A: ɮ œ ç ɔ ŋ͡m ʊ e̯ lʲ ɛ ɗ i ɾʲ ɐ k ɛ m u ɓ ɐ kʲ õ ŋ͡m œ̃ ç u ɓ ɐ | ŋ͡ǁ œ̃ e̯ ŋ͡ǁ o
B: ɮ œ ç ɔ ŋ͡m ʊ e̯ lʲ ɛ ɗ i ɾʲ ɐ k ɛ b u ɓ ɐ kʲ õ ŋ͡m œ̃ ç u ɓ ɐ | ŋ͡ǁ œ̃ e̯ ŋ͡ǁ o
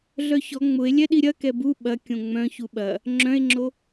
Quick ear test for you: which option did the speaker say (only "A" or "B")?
B